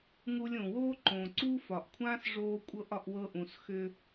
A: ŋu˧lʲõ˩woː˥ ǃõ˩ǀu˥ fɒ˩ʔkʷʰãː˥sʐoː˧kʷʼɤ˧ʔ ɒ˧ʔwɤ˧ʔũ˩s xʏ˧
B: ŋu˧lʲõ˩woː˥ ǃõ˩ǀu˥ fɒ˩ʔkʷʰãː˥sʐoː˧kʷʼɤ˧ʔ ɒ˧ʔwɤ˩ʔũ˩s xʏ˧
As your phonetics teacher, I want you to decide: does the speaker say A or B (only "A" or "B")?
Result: A